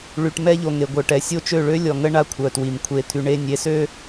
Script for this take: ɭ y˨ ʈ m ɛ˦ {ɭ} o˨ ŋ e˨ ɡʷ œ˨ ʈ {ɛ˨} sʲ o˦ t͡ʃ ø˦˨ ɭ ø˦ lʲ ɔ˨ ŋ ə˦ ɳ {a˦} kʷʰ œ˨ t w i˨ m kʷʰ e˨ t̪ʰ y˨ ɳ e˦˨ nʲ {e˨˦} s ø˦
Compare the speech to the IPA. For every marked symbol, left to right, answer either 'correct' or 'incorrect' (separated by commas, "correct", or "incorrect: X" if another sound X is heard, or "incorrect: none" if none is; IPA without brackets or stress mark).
incorrect: ʎ, correct, correct, correct